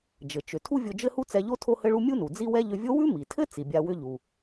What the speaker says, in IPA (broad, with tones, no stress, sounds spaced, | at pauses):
d͡ʒ ɘ˩ t͡ʃ ʏ˩ tʰ u˥ vʲ o˧ d͡ʒ ɘ˥ h u˥ t͡s ɛ˧ ʎ o˥ tʰ o˥ h ɘ˥ ɭ u˥ mʲ u˥ n u˩ d͡z i˥ w ɛ˥ ʎ ʏ˧ vʲ o˥ w ʉ˥ m i˩ tʰ ɘ˥ t͡s i˩ bʲ a˧ w ʏ˥ ʎ u˩